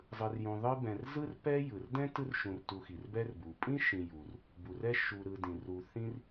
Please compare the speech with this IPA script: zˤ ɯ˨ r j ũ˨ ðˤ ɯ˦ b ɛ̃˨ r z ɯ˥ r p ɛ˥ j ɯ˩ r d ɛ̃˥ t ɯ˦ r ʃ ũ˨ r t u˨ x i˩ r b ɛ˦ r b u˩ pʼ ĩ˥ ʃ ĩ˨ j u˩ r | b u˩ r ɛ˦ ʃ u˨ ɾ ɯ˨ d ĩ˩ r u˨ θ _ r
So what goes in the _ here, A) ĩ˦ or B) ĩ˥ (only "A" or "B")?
B